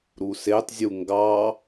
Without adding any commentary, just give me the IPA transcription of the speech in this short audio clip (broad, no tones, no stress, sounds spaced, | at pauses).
ɾ u s e tˤ zʲ u ŋ ɡ ɑ